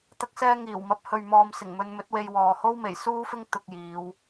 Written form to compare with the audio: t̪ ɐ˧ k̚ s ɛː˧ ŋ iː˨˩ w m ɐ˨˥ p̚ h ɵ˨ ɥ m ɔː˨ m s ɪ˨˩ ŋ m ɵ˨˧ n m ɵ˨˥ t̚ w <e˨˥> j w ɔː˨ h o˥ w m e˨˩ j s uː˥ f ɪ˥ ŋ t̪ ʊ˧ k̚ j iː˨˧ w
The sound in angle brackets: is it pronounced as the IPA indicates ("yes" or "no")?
no